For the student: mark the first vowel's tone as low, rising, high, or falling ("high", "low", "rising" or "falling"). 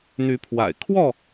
rising